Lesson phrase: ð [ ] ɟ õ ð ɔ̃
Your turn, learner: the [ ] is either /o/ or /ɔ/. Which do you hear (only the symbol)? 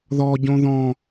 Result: ɔ